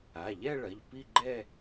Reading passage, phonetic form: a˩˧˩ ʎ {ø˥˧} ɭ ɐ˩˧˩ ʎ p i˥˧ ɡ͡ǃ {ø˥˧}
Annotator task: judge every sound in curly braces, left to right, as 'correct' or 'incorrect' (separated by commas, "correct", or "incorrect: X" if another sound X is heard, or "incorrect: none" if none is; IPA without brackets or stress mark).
incorrect: ɛ˥˧, incorrect: ɛ˥˧